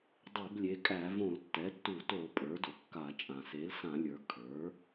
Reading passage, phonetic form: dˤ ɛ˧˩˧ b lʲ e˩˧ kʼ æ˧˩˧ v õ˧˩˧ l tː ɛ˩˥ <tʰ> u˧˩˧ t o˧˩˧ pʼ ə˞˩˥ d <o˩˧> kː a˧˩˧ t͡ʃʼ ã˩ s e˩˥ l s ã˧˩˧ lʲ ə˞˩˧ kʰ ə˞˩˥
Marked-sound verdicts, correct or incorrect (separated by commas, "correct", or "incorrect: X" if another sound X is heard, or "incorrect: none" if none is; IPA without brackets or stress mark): incorrect: tː, incorrect: o˩